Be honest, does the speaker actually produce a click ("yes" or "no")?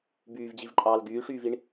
yes